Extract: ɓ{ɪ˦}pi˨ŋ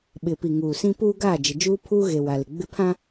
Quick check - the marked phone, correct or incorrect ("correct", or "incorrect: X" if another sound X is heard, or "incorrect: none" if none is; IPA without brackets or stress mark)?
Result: incorrect: ɪ˨